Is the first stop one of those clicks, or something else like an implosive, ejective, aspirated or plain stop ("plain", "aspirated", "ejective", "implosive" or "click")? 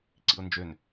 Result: click